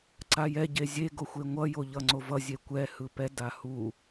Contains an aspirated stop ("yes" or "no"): no